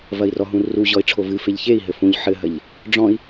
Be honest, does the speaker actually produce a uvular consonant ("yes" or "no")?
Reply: no